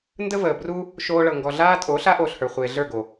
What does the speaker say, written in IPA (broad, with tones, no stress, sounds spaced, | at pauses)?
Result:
n d ə˦ v əː˨ b r u˦ | ʃ oː˧ ɭ ɤ˨ ŋ ɡ ɔ˨ ɮ aː˧ tʼ oː˨˦ ɬ a˨˦ ʔ oː˨ ɬ h ə˞˨ χʷ eː˨ ɮ ə˞˦˨ ɡ o˨